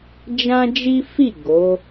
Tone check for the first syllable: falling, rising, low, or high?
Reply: high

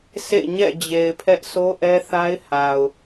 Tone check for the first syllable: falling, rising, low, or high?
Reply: falling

